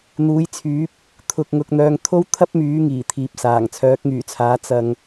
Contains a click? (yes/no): no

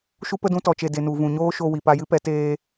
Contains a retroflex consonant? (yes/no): no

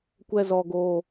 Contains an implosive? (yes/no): no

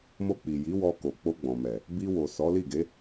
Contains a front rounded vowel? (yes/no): no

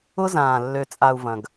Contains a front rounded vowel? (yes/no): yes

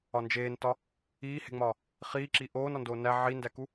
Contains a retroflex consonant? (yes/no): no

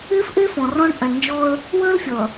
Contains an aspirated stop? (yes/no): no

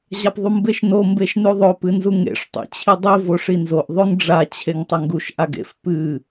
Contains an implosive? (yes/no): no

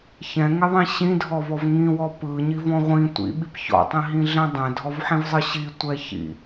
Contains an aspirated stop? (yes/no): no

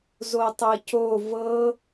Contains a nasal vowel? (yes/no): no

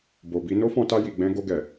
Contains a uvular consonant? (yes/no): no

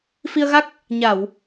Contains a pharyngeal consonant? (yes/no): no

